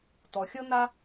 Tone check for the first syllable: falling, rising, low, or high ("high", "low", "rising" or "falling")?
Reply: low